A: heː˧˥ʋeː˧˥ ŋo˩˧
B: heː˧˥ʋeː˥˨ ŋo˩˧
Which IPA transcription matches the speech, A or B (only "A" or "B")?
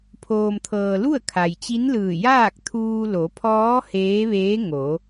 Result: A